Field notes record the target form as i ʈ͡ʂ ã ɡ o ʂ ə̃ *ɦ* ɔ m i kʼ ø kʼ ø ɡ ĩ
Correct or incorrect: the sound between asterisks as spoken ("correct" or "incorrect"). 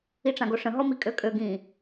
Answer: correct